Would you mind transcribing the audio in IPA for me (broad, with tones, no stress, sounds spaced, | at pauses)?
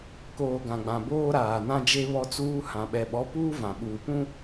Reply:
k oː˨ ɡ ã˨ ɡ͡b ã˨ b oː˦ ɾ aː˨ n ã˦ d͡ʒ e˦ β ɔ˦ t͡s uː˦ h ã˨ ɓ ɛ˨ ɓ ɔ˨˦ p uː˦ v ã˨ ɓ uː˨ p ũ˦